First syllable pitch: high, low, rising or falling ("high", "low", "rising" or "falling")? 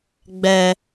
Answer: high